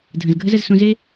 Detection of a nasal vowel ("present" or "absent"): present